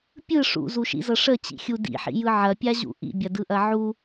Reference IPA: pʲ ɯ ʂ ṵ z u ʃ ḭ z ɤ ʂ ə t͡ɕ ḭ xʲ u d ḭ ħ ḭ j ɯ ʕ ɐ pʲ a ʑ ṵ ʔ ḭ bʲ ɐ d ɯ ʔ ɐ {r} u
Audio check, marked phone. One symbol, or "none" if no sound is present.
ʕ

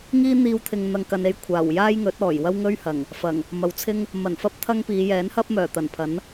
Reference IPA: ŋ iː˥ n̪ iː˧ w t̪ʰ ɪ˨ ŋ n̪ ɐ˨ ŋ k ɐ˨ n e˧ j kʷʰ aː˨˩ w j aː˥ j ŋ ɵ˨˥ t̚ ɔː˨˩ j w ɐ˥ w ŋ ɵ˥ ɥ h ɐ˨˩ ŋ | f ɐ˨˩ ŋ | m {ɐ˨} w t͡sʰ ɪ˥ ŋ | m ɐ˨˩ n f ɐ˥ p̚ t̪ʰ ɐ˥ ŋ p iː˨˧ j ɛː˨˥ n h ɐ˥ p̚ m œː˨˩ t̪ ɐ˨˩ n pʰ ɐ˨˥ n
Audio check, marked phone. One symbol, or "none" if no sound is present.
ɐ˨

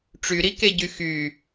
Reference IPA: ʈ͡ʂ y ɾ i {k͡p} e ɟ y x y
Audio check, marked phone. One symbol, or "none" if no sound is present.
k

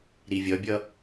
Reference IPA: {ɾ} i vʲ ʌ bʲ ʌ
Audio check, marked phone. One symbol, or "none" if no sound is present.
ɾ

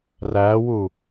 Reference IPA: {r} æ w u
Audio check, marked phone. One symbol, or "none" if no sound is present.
r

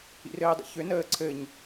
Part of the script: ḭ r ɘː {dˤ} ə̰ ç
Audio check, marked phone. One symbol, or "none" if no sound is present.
dˤ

